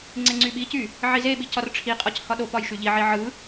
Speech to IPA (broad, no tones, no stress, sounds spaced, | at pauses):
ŋ͡ǀ e ŋ͡ǀ y ɓ i c y | ʕ i z e ɓ i c ɒ r ʈ͡ʂʰ i qʼ ɒ c h ɒ ɗ o p ɒ j ʃ y ʎ i ʕ i ʕ ɯ